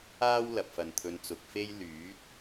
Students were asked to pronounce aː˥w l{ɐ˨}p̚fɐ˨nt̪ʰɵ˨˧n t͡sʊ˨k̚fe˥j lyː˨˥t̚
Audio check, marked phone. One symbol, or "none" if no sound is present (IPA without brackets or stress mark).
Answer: ɐ˨